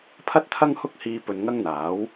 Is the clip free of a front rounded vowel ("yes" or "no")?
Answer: yes